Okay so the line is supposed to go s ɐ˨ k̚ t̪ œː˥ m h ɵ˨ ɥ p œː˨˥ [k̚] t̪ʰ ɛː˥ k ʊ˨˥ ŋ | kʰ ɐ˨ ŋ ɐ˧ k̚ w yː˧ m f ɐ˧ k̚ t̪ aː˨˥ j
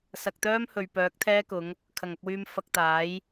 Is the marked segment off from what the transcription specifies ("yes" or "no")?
no